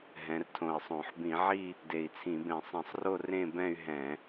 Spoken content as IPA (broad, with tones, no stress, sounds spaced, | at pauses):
ɦ ɛ̃˩˧ r tʰ õ˨˩ i̯ sˤ õ˧˩˧ ħ b ĩ˧˩˧ ʕ i˥˧ | d e˨˩ i̯ t͡sʰ ĩ˧˩˧ b ẽ˧˩˧ sˤ ĩ˧˩˧ sˤ r o˥˧ r ẽ˥˧ b ɛ̃˥˧ y̯ ɦ ɛ̃˧˩˧